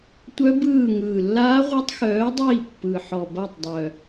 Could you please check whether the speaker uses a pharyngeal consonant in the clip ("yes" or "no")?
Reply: yes